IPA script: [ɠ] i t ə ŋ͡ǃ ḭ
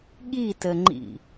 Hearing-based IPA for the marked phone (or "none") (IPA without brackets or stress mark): ɠ